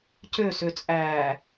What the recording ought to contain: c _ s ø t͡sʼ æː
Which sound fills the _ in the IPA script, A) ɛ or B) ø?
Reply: B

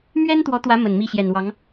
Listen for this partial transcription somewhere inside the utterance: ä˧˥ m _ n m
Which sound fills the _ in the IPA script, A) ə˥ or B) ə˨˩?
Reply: B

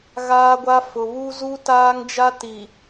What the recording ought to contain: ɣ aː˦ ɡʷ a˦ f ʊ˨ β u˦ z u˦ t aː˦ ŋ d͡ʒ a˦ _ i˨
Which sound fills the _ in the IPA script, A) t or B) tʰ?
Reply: A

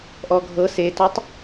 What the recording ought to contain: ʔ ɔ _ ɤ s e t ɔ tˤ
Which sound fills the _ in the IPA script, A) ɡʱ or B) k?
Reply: A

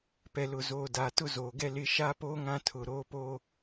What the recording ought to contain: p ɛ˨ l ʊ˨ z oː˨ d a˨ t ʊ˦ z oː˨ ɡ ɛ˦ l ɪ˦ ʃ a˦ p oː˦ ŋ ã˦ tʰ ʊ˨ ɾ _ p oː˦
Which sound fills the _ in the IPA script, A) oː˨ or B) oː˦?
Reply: B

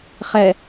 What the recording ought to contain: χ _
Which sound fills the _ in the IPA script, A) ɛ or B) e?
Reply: A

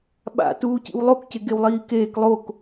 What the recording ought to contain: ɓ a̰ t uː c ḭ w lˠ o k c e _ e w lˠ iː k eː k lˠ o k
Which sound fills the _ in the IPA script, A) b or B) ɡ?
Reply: B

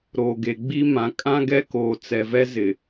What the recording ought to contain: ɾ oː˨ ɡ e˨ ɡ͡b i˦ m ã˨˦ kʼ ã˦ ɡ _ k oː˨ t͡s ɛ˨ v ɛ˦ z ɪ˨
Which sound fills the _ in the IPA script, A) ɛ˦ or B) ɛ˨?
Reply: A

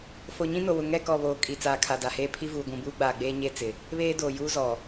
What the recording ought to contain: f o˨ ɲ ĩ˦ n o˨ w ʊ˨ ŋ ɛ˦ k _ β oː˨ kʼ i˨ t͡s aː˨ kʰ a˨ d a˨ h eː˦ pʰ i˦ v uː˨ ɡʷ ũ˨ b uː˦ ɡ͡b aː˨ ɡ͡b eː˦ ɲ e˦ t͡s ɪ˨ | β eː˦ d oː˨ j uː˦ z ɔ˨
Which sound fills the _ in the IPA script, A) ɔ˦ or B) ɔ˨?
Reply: B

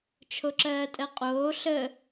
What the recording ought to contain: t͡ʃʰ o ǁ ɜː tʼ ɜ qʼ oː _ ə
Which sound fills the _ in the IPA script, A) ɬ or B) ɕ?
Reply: A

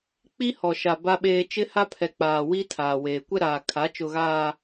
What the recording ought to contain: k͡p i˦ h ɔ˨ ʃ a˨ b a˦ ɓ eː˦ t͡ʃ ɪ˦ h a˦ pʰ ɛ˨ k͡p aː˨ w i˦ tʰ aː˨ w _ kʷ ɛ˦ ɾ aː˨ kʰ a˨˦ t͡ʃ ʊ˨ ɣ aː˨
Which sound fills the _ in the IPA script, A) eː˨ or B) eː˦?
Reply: A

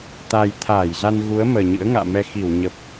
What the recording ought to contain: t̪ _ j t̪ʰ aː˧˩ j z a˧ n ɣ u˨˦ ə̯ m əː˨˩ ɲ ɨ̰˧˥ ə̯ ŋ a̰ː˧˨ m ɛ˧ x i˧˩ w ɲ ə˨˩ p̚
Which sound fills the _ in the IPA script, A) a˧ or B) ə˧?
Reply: A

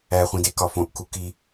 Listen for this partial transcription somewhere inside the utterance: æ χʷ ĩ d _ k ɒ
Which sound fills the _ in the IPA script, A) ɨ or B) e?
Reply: B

